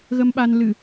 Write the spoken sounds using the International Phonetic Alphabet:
ɣ ə˧ m ɓ a˧ n l ɨ˧˩˨

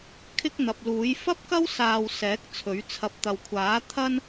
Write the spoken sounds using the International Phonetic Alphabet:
kʰ ɪ˥ k̚ n̪ ɐ˨ p̚ l uː˨˥ j f ɐ˥ p̚ k ɐ˥ w s aː˧ w s ɛː˨˥ k̚ t͡sʰ ɵ˨˥ ɥ t͡sʰ ɐ˧ p̚ t̪ ɐ˨ w kʷʰ aː˨˥ t̪ʰ ɐ˥ n

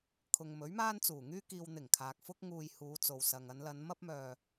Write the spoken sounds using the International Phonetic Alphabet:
kʰ ʊ˨ ŋ m ɵ˨˥ ɥ m aː˥ n t͡s uː˨˩ ŋ yː˥ k iː˨ w n̪ ɪ˨˩ ŋ kʰ aː˨ k̚ f ʊ˥ k̚ ŋ uː˧ j h uː˨˧ t͡s o˨ w s ɐ˨ ŋ ɐ˨˧ n l ɐ˨˧ n m ɐ˥ p̚ m œː˧

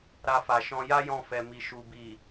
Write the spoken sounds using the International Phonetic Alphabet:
ɾ a˧ f a˨ ʃ ɔ̃˧ j a˦ j ɔ̃˧ f ɛ˨ m i˨ ʃ u˨ b i˨

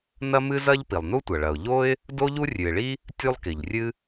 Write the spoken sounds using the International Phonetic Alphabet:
n ɐ˥ m ɨ˥ z ɐ˥ ʎ p i˩ lˠ n u˥ tʷ ɐ˩ ɭ ɐ˩ ʊ̯ ʎ o˥ ɪ̯ | d o˥ ʎ u˥ rʲ ʉ˩ ɪ̯ ɭ i˥ | tʲ u˥ lˠ k i˩ ʎ rʲ ɨ˥

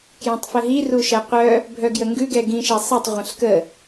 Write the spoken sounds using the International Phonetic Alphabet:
k j ɛ̃ tˤ f ə ɦ i r u ʃ ɛ qʷ œ | bʱ œ ɡ j ə ŋ ɡ ʉ ɡ ɛ ɡ ĩ ʃ ɛ sˤ ɛ tˤ ʁʷ ə̃ ɬ k ə

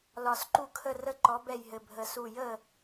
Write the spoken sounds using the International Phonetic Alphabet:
l ɒ˨˩ s ǃ u˦ kʰ ə˦˨ r ə˦ ǃ ɔ˨˦ b ɛ˦˨ j ɦ ɘ˨˩ bʱ ə˨˩ s u˦˨ j ə˦˨

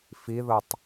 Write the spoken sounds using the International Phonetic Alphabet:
f i ð ɤ tˤ

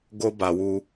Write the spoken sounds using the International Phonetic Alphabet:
ɡ o˦ b a˨ w u˦

